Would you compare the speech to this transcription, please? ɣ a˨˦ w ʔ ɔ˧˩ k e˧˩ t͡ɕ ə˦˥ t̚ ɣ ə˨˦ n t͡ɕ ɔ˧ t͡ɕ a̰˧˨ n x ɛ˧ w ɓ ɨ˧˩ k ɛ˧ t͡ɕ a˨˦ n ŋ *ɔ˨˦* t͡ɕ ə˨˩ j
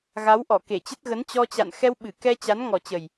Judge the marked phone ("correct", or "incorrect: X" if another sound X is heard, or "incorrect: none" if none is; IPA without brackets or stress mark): incorrect: ɔ˨˩